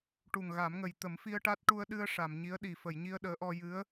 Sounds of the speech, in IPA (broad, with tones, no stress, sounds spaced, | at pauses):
ʈ u˨˩ ŋ ɣ a˨˩˦ m ŋ ə˨˩ j t̪ ə˨˩˦ m f i˧ ə̯ ʈ a˦˥ t̚ ʈ u˧ ə̯ ɗ ɨ˧ ə̯ ʂ a˨˩˨ m ɲ i˧˥ ə̯ ɗ i˨˩ f ə˨˩˨ j ɲ i˧ ə̯ ɗ əː˧˥ ʔ ɔ˧ j ɨ˧˥ ə̯